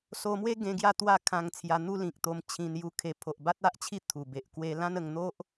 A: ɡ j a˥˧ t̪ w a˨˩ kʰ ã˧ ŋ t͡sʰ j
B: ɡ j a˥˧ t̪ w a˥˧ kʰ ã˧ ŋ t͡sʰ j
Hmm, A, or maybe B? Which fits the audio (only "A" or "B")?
B